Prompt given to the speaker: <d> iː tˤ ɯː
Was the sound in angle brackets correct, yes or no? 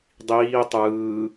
no